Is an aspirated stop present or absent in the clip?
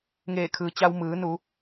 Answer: present